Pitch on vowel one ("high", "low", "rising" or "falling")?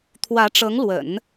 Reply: rising